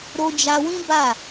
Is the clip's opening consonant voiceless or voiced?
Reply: voiced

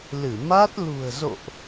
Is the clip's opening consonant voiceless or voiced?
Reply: voiced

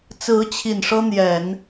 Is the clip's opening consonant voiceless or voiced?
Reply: voiceless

